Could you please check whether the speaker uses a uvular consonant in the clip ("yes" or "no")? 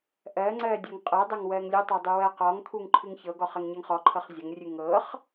yes